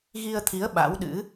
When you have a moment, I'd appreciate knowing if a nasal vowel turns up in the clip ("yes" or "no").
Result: no